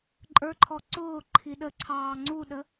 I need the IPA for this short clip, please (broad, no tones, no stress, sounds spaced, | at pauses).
ǃʼ ə˞ ǃʰ ɔ ǀ ʊː ǃʰ i ɗ ə ǀʰ ɑː ŋ͡ǀ u ɗ ə